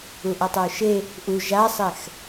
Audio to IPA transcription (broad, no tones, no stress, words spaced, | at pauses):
uʔʌtˤaʊ̯ʃe | ʔu ʒasˤɛx